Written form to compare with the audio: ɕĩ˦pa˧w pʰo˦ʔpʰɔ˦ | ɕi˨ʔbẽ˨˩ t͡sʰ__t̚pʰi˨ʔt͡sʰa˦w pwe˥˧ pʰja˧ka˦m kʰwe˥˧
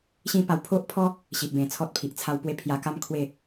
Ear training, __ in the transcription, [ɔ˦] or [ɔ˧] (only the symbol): ɔ˦